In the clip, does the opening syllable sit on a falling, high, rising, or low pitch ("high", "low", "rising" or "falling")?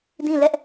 falling